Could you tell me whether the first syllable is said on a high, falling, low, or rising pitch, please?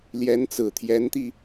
rising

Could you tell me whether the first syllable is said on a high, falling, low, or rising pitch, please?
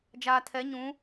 low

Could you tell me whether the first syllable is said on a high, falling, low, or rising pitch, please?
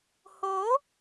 rising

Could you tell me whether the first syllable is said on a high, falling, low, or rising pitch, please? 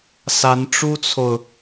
rising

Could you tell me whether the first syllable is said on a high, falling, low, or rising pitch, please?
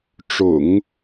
low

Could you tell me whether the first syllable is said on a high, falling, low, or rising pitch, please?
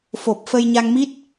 low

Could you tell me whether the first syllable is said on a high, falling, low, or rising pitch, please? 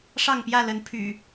falling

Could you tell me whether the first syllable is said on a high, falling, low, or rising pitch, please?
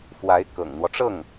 rising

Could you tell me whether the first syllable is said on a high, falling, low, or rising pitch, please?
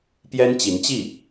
high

